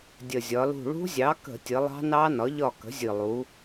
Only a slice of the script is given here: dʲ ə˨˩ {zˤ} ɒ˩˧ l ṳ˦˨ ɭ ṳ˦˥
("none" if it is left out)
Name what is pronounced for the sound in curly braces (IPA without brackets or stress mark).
zʲ